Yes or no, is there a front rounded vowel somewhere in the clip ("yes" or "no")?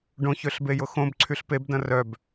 yes